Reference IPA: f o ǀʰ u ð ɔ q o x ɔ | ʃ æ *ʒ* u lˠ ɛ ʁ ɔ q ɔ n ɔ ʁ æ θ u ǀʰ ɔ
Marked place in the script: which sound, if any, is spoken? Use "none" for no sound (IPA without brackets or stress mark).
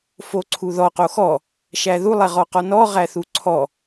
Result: ð